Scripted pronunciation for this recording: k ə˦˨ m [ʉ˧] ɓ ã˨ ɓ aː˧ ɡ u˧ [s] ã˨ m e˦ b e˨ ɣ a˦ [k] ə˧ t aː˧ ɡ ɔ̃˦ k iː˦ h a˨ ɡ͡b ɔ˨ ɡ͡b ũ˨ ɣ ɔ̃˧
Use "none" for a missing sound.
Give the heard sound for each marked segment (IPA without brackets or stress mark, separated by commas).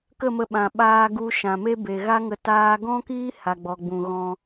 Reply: ə˧, ʃ, ŋ